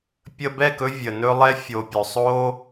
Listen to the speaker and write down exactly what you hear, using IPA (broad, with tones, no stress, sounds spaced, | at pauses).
pʲ ə˧ b ɛ˦˨ k ɵ˧ vʲ ə˨ n ɵ˧ lˠ ɛ˧ fʲ o˨ pʲ ɵ˨ sˤ o˧